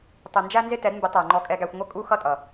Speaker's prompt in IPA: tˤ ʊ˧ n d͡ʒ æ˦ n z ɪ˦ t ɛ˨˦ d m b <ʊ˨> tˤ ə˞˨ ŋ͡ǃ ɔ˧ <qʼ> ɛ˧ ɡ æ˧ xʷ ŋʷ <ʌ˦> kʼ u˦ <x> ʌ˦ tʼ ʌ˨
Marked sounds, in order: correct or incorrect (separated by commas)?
incorrect, incorrect, incorrect, correct